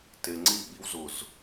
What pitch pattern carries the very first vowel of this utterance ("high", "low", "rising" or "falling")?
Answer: low